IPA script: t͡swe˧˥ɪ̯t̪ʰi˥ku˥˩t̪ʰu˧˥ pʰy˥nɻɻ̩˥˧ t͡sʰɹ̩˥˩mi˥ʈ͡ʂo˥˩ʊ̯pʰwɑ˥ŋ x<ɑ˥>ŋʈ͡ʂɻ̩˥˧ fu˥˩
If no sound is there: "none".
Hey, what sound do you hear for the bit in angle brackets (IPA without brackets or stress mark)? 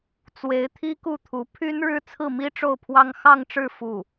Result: ɑ˥˧